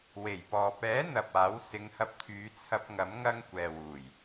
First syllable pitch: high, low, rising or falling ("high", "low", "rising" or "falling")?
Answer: low